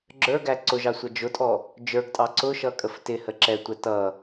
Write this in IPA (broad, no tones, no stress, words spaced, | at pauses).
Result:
ɡ͡ǁə˞ɡæ ǀʊʒɑ sʷʌd͡ʒʊtʼɔ | d͡ʒə˞ɡtʼɑ ǀʊʃʌ kʼəftɪhə ǁɛtʷɛ tʌ